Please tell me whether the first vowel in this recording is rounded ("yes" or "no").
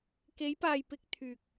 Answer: no